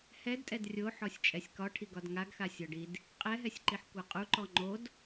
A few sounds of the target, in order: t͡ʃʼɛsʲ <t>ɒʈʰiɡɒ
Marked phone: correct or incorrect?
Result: incorrect